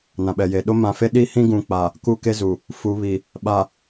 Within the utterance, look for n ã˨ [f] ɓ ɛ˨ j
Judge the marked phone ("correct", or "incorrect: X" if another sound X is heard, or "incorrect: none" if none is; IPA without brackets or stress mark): incorrect: none